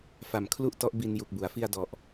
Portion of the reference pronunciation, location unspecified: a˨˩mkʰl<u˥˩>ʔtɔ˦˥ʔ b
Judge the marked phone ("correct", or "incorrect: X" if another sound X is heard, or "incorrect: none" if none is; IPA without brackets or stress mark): correct